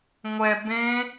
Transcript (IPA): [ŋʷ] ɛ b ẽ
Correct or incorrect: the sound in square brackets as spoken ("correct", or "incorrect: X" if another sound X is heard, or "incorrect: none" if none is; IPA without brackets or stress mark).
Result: correct